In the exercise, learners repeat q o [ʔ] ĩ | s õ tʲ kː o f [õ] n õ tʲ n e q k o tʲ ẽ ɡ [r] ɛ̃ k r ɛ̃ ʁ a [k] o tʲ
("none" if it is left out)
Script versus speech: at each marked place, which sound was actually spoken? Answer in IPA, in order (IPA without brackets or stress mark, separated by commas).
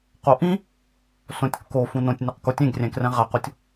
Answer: ʔ, ũ, rʲ, q